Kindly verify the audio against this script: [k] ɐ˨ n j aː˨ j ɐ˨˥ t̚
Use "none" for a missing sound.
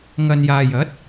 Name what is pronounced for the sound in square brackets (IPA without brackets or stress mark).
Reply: ŋ